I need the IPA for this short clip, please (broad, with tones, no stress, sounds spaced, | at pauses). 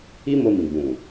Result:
i˦ m o˧ m ĩ˨ ɡ͡b ũ˨